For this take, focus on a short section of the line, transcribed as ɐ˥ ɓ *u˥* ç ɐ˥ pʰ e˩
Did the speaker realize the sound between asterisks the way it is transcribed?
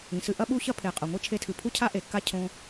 yes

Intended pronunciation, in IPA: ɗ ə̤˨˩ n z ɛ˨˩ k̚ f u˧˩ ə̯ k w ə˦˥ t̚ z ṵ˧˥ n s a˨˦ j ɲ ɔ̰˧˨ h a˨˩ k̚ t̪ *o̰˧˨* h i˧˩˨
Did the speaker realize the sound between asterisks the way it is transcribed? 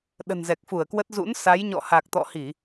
no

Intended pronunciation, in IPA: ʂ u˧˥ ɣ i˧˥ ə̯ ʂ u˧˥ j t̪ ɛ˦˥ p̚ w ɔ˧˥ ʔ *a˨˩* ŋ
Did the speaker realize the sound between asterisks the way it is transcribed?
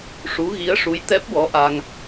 no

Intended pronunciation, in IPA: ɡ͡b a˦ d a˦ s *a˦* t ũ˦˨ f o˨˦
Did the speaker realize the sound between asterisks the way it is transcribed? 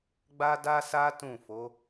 yes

